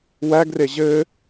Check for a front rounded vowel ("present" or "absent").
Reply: absent